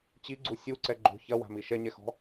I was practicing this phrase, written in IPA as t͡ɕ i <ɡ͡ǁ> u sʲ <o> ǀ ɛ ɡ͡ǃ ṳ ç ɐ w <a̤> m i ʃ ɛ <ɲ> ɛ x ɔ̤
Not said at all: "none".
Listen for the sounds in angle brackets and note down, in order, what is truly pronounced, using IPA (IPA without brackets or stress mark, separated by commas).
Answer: ɡ͡ǀ, u, a̤, ɲ